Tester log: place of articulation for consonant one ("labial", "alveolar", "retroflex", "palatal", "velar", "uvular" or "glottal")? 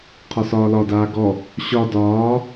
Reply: uvular